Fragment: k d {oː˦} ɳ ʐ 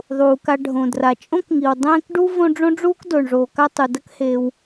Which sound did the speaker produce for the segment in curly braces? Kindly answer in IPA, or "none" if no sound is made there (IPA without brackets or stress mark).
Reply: oː˩